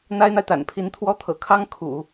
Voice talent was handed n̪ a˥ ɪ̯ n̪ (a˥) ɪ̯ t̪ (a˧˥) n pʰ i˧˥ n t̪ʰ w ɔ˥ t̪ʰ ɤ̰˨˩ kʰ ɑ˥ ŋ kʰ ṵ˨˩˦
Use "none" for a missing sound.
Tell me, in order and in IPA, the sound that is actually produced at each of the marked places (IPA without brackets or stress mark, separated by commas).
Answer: a˨, a̰˨˩